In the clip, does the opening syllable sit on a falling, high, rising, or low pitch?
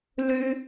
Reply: high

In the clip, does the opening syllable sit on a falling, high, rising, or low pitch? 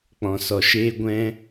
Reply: low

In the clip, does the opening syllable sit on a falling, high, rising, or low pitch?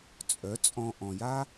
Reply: rising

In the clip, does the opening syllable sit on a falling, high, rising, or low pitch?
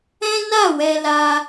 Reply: high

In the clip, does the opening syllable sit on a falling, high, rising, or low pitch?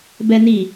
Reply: high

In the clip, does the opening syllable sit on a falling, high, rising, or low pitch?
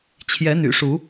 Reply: rising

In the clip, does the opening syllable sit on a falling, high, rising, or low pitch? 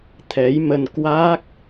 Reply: rising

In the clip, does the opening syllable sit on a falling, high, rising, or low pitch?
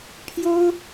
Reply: high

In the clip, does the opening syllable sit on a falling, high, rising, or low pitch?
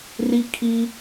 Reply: high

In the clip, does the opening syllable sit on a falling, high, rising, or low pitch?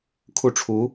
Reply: falling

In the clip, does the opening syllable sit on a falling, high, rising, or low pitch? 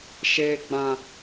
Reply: low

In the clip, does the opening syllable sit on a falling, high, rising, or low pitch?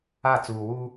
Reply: falling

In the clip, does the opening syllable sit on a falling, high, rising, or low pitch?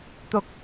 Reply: low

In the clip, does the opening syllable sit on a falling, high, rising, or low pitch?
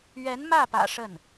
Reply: rising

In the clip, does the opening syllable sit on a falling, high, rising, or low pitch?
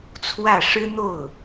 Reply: falling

